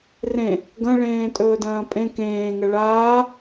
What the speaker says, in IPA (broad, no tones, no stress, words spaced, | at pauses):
rẽ | ɡɐ̃ɭẽː tʼɵːdɐ̃ːpʼẽ kẽːŋɐ ɭaː